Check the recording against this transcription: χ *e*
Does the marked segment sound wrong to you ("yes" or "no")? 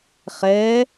yes